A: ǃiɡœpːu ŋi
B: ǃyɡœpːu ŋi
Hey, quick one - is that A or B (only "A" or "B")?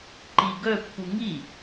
A